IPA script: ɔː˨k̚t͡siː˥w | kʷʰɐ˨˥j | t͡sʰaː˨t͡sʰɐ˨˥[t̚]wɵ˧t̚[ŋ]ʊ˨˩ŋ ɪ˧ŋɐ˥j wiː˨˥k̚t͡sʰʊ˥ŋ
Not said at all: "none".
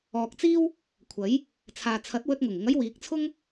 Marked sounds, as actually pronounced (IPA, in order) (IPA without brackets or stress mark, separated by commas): t̚, ŋ